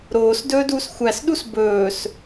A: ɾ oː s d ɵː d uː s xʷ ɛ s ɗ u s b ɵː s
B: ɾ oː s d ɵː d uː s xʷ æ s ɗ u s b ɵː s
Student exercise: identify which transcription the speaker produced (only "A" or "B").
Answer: B